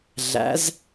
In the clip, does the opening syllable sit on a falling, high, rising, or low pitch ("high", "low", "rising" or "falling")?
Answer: rising